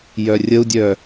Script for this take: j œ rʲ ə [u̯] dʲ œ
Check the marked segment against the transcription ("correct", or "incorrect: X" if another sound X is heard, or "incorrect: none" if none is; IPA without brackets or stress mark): correct